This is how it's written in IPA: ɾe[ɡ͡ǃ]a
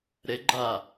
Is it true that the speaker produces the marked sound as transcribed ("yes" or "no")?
yes